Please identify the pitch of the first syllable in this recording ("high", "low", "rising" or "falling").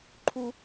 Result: high